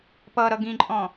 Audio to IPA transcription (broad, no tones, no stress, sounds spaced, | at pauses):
p ʌ ɾ ʌ ɡ ĩ ǃʼ ɔ̃